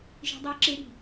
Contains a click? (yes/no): yes